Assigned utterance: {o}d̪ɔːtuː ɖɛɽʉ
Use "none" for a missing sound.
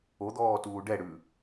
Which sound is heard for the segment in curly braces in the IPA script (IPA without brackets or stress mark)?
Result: o